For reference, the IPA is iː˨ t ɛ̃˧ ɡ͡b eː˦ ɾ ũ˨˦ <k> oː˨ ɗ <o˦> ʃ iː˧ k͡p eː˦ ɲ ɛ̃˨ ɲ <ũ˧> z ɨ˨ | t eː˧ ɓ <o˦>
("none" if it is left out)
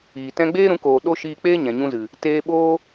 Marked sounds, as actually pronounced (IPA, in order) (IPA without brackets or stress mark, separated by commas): k, o˦, ũ˧, oː˦